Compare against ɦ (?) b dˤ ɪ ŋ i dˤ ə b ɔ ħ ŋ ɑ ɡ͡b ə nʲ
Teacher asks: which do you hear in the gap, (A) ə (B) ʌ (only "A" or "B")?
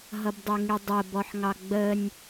B